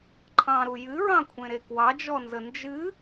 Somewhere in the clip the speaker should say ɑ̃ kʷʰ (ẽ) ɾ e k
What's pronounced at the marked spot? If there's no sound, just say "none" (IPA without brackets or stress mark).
ẽ